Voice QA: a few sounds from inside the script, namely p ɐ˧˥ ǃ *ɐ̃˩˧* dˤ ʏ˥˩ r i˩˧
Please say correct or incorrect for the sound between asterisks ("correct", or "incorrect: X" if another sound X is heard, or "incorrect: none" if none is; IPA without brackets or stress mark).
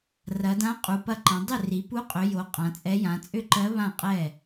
correct